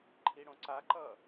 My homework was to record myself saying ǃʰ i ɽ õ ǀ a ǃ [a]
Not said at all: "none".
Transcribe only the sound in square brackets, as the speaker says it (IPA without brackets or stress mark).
ʌ